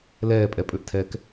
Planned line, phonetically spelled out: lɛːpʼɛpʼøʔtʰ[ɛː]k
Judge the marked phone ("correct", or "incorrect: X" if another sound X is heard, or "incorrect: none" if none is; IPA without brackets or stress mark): correct